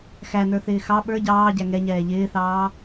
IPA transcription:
x æ n ə˞ θ ɪː x ɑ ɓ ə˞ ɟ ɑː ɟ æ ŋ ɛ ɲ ɛː ʎ ɪː θ ɑː

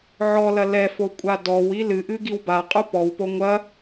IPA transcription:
ʕ ɔ l ɐ l ɛ f o kʷʼ a d ɔ w i l ɨ ʔ ɨ ɡ i w b a qʼ u p ɔ w p o ŋʷ ɐ

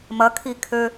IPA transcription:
m ɐ kʰ i kʰ ø

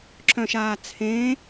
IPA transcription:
ǁ œ̃ ʃ aː t͡sʰ ẽː

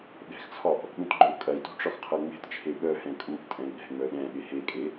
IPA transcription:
ɗ ɛ̤ x t͡sʰ ɒ ʔ | ɗ ũ t ɡ͡ǃ œ u̯ kʼ ɐ i̯ t ṳ ʈ͡ʂ ɒ x qʰ ɐ ŋ͡m e̤ t t͡ʃʰ e ɓ œ h ɛ̃ kʼ u ʔ tʼ ɛ̃ i̯ ɗ ɛ̤ ŋ͡m œ ɗ ɛ̃ ɓ e h e kʼ e

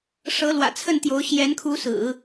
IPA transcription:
ʂ ɤ˧˥ l w ä̰˨˩ t͡sʰ ə˥˩ n t̪ j o˧˥ ʊ̯ ɕ j ɛ˧˥ n kʰ u˧˥ s ɹ̩˨˩˦

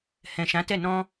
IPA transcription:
h ɛ̃˨ ʃ ã˨˦ t ɛ˦˨ n ɔ̃˧

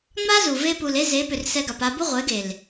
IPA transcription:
ŋ͡m a˦ z u˨ v e˧ p u˨ l e˧ z e˨˦ p ʏ˨ r s ɛ˧ ɡ a˨ p a˧ b u˦ ʁʷ e˨˦ ɡ e˨ l

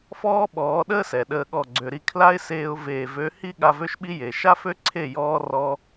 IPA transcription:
f ɔː˦ ɓ ɔː˨˦ ɗ əː˦ s ɛ˨ ɗ əː˧ ɠ ɔ˦˨ ɡ͡ǀ ø˧ ɾ i˧ kʰ l a˦ ɪ̯ s eː˧ ʊ̯ v eː˨ v ø˨˦ h i˦ ɠ a˧ v ø˦ ʃ ɓ i˦ j e˨ ʃ a˦ f ø˦ ǀʰ e˦˨ j ɔː˦ r ɔ˦

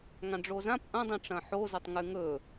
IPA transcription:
ŋ ã ɖ͡ʐ o z ã p ʔ ɐ̃ dˤ ĩ ʈ͡ʂ ɐ̃ ħ o z ɵ tˤ ŋ ʉ ŋ ɵ

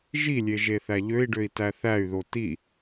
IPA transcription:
ʒ i lʲ e ʒ e θ æ ʎ ø i̯ ɖ ø i̯ t æ θ æ y̯ ð o t i

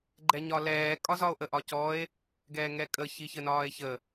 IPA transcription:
ɡ͡ǃ ɛ ɲ ɒ l ɛː kʼ ɒ z ɒ o̯ ʔ ə ʔ ɒ c ɔ e̯ | ɡ ɛː ŋ ɛ kʼ ə ç i ç ə n ɒː e̯ ç ə

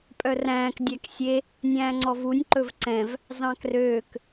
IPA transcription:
pʼ œ r æ̃ː k dʲ æ k sʲ e | nʲ æ̃ː ŋ͡ǀ ɔ v u nʲ ǃ ɵ v ǀ ɛ̃ v | z ɑ̃ k r øː k

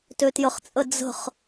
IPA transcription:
t ø t j ə χ t͡sʼ ə d͡z ə̤ χ

